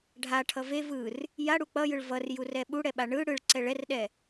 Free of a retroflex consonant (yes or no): no